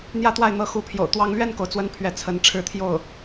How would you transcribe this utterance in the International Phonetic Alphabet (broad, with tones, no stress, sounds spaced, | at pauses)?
n̪ j ä˥˧ t̪ w a˥˩ ɪ̯ n̪ ɤ˧˥ x u˧˥ pʰ j o̰˨˩ ʊ̯ t̪ w ɑ˥ ŋ l ɥ ɛ˥˩ n k o˩ ʊ̯ t͡s w ə˥ n pʰ ɥ ɛ˥˩ t͡sʰ ə˧˥ n ʈ͡ʂʰ ɻ̩˥˧ t̪ʰ j o˥˩ ʊ̯